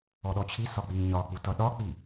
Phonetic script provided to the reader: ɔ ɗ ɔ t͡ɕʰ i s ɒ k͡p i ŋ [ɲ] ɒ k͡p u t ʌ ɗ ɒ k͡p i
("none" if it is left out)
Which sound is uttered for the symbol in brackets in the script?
ɲ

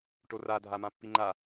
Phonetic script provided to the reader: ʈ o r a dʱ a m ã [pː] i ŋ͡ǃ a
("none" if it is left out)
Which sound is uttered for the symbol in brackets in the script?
pː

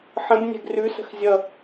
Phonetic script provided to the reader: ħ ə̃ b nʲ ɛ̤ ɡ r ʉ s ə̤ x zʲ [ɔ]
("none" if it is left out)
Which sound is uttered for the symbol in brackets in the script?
ʌ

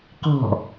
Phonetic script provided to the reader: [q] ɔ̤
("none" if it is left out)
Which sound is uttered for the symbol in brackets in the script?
q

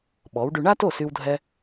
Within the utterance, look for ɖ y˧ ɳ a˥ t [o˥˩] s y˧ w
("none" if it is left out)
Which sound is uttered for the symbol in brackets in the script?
o˥˩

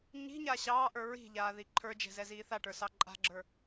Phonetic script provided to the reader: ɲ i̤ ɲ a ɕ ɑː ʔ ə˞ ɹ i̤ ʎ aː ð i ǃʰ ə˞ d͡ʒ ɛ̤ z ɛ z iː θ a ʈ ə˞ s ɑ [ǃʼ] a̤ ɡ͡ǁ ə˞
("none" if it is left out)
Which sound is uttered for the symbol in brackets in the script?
ǃʼ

